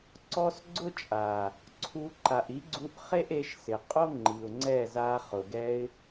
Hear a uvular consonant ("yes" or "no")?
yes